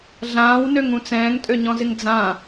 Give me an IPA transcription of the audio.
ɮ ãː w n ø ŋ ũ t͡s ɛ̃ː ŋ tʼ ø ɲ ɔ̃ z ɪ ŋ d͡z ã

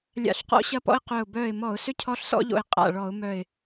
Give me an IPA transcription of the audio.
lʲ a̰˧˩˧ ɬ q ɔ̰˦ ɕ ɐ˦ p ɔ̰˦ ɪ̯ q œ˧˩ ʊ̯ b œː˧˩ ɪ̯ m ɔ˧˩˧ ʊ̯ s ʏ˦ cʰ ɔ˦ ɬ s ɔ̰˦ ʎ o̰˧˩ ɪ̯ qʼ a̰˧˩ ɭ ɔ˧˩˧ ʊ̯ m œ˧˩ ɪ̯

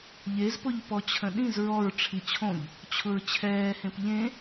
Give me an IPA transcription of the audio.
ʎ e z p ʊ ʎ p ɔ t͡ɕʰ ə̃ ɗ ĩ z ɹ ɔ ɹ ʈ͡ʂʰ i t͡ɕʰ õ ʎ | t͡ɕʰ ʊ ɹ t͡ɕʰ ɛː h ẽ p ʎ ẽ

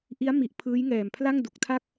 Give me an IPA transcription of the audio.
ʔ i˦˥ a̯ m i˨˩ ʔ pʰ ɯː˦˥ j ŋ ɛː˨˩ m pʰ l a˥˩ ŋ d u˨˩ k̚ tʰ a˥˩ k̚

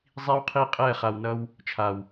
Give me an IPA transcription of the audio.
zˤ i˦ w qʰ i˦ qʼ ɛ˦˨ χ a˨ w n ʌ˧ w | t͡ʃʰ a˨ w

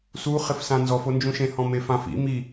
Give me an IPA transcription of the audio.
s u χ ɪ f s ã n z ɔ f o n d͡ʒ ũ ʃ ẽ h ɔ̃ m e f ã f ḭ m i

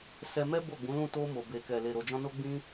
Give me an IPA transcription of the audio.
s ɛ˧ m ɛ˦ b o˦˨ ɡ͡b ũ˨˦ l ũ˦˨ t o˧ m o˨ b e˨ k ɛ˨ l e˨ ɾ o˨ d͡ʒ ɔ̃˧ n o˦ ɡ͡b ĩ˦

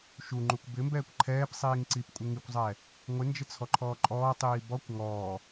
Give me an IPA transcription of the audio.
ʃ u ŋ͡ǃ u kʷ b ɪ m b ɛː kʷ ǃʰ ɛː p sˤ iː ŋ ǀ i p kʷʼ ɪ ŋ i kʷ zˤ ɛ | ŋʷ ɪ n d͡ʒ ɪ t͡sʰ ɔ ǃʰ ɔː ǃʼ ɔː tˤ iː b ɔ kʷ ŋ ɔː

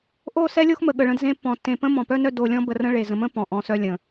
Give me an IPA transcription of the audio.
ʔ o˦˨ s ɛ˦ lʲ o˦ x m ə˨ ɠ ə˨ ɭ ə̃˧ d z ẽ˧ pː ɔ̃˨ tː ẽ˨ p ə̃˦ m ɔ̃˨ p œ˦ n œ˧ d o˨ lʲ ɔ̃˧ b ə˨ r ə̃˧ ɭ e˨ z ə̃˨ m ə̃˦ p ɔ̃˨ ʔ ɔ̃˨ s œ˧ lʲ ə̃˨

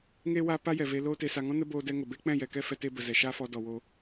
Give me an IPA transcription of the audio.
ŋ e˨ w a˨ p a˦ j ɛ˨ v e˧ l oː˧ t e˨ s a˨ ŋ ɔ̃˦ n ə˦ b oː˧ d ɛ˧ ŋ ə˨ b e˦ k͡p ɛ̃˦˨ j ɛ˨ k ɛ˦ f ɛ˧ t e˦ b ə˨ z ɛ˨ ʃ a˦ f ɔ˧ d ɔ˨ w o˧

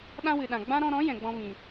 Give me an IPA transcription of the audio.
ɗ ã˦ w ɨ˨ ɗ ã˨ ɡ͡b ã˦ ɾ ɔ̃˧ ɾ ɔ̃˨˦ j ɛ̃˨ ɡ͡b ɔ̃˦ v ĩ˨

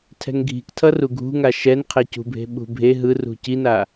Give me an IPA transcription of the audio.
tʰ ɛ̤ ŋ ɡʱ i̤ k tʰ ʌ r u ɡʱ ṳ ŋ a ʃ ɛ n qʰ e c ṳ bʱ e̤ ɓ ṳ bʱ e ɦ ɯ r ṳ c i n a

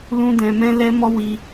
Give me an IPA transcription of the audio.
l ũ˦ d ɛ̃˧ m ɛ̃˦ l ɛ˦ m ɔ˦ w i˧

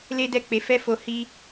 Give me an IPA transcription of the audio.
l e˦ d ɛ˦˨ k͡p e˨˦ f ɛ˦ f o˧ h i˦

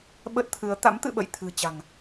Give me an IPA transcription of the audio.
ɓ ə˦˥ t̚ t̪ʰ ɨ˨˦ ə̯ t̪ a̰˧˥ m t̪ ɨ̰˧˨ ɓ ə̰˧˨ j t̪ʰ ɨ̤˨˩ t͡ɕ a̤˨˩ ŋ

